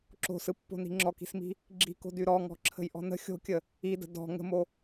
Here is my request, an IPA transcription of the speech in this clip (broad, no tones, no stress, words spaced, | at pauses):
ǁo̤sɯpːo̤ni̤ ŋ͡ǁɔki̤smi̤ | ɡ͡ǁi̤ko̤dy ɾɔŋɔ̤ǁʰə̤jʔɔ̤ nə̤ xʲo̤kʲə | idə̤ dɔ̤ ŋə̤mo